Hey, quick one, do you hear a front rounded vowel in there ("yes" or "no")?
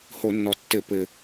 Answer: no